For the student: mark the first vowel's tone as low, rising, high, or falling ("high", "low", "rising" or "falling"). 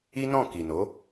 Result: high